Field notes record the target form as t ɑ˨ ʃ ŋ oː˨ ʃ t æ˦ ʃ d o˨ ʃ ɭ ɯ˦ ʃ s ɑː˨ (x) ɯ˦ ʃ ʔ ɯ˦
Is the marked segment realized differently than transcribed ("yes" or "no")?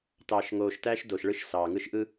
yes